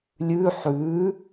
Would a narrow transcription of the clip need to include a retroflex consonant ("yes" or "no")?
no